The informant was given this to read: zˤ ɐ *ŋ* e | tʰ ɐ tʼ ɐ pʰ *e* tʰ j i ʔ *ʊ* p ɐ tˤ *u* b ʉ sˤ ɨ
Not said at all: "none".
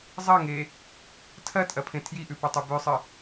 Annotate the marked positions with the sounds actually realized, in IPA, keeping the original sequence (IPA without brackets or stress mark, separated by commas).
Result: ŋ, ẽ, ʉ, ʉ